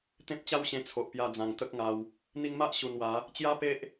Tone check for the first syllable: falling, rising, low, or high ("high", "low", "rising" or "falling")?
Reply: high